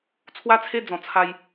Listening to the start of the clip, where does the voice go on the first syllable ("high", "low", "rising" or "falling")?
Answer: high